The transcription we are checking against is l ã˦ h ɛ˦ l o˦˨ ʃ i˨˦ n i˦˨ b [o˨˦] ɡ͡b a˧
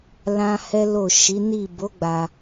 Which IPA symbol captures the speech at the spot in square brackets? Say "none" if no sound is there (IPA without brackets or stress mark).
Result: o˨˦